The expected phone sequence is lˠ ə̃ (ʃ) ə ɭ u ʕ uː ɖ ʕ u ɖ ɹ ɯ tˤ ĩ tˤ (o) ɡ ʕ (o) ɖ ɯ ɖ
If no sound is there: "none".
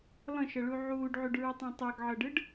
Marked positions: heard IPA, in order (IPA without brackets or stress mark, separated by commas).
ʃ, ɤ, ɤ